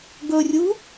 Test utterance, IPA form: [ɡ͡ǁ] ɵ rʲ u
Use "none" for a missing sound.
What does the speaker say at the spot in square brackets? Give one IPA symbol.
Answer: ɡ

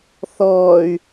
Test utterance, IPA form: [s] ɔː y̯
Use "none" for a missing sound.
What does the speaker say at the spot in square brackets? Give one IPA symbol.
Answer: θ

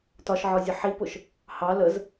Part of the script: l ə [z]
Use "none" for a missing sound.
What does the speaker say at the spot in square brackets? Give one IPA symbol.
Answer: z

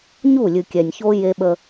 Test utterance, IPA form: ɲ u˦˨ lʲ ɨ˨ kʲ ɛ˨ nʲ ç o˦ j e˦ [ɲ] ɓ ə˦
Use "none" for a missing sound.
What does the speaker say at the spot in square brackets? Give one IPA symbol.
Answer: none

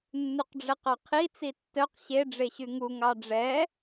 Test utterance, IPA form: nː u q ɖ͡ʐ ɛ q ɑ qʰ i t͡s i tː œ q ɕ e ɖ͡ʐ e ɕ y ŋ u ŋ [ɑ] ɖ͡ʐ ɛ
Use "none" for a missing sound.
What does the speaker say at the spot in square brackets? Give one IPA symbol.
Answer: ɑ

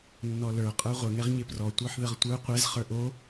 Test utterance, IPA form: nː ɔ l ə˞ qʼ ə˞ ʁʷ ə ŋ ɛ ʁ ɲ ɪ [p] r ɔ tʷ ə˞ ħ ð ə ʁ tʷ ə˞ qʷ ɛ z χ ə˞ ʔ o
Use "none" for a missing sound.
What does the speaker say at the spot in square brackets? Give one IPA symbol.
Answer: p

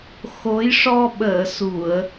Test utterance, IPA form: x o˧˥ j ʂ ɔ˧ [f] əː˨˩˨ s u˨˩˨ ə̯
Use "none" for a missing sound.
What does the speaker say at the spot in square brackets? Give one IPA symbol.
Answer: ɓ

